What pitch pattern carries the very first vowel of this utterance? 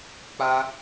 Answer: high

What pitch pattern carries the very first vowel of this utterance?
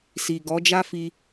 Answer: low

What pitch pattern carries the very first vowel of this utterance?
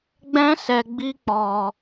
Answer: high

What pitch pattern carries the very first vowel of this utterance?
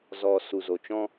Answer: low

